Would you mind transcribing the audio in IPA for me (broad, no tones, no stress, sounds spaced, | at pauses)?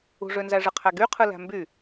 ṳ ʐ ø n z æ ʐ ɯ qʰ æ ɡ y qʰ ɯ l æ̤ m b y